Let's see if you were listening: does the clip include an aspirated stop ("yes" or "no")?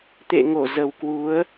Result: no